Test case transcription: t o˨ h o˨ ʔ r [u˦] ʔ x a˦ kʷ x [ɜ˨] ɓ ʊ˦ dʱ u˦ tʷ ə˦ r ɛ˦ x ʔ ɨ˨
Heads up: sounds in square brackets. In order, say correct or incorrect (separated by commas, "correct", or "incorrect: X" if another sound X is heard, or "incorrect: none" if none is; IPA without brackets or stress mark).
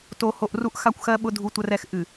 correct, incorrect: ɜ˦